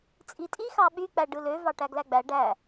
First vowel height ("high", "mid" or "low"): high